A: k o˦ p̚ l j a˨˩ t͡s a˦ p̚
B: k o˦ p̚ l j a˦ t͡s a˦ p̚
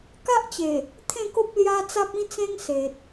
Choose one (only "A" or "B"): B